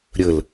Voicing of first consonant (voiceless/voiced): voiced